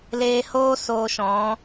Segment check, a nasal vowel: present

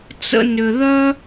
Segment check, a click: absent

